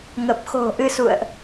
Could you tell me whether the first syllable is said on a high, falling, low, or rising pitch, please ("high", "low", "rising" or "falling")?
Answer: low